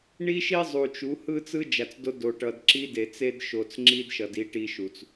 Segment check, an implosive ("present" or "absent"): absent